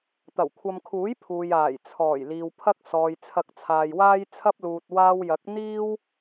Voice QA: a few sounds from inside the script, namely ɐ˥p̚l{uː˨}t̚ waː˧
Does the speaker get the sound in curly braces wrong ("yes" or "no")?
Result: no